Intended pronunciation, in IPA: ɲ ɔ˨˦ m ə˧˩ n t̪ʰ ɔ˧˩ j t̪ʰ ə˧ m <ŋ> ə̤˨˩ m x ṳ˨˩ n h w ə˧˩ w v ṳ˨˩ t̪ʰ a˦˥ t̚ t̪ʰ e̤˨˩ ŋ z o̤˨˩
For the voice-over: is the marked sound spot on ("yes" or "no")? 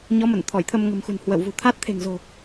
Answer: yes